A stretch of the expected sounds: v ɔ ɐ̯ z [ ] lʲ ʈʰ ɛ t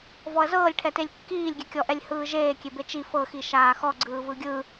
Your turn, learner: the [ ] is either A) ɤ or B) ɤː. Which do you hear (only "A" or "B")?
B